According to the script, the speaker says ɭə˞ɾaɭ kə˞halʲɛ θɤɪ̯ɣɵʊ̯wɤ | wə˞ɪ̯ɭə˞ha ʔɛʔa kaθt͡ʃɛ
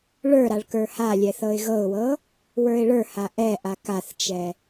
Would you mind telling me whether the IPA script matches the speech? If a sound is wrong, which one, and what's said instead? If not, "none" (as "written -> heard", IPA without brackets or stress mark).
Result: ɵ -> ɤ